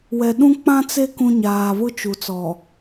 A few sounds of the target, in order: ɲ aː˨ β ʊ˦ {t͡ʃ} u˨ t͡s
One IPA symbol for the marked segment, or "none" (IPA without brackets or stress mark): t͡ʃ